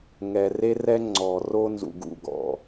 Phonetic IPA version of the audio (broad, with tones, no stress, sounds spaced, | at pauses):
ŋ ɛ˨ r e˦ r ɛ˦ ŋ͡ǀ ɔ˨ r o˦ n z ṵ˨ ɡ ṵ˨ ɡ ɔ̰˨